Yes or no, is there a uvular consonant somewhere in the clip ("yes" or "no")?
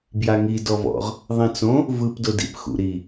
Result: yes